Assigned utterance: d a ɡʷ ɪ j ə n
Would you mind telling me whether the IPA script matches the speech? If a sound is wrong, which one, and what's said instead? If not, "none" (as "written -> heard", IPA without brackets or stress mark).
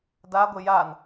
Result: ə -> a